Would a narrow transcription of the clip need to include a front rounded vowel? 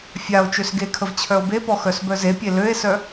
yes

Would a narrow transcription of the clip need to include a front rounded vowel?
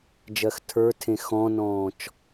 no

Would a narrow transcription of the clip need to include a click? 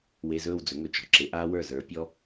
yes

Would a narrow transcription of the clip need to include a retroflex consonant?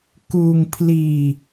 no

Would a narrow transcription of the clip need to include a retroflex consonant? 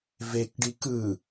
yes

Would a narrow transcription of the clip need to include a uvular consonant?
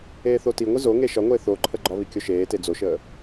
no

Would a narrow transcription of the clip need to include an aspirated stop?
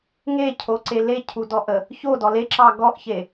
yes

